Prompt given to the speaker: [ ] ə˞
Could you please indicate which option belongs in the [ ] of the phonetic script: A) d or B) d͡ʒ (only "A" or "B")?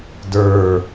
A